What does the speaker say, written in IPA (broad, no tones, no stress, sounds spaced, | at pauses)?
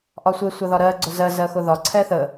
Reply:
ʔ ɒ sʷ ɪ sʷ ɜ ð ɒ ɾ ɜ ɡ͡ǀ ʊ z ɜ z ɜ x ʊ ð ɒ ǀʰ ɛ θ ə